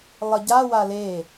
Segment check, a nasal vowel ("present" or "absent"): absent